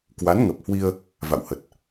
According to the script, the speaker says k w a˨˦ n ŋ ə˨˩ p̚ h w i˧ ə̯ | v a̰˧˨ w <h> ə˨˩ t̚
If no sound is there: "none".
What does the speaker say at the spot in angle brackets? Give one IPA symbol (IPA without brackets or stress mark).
h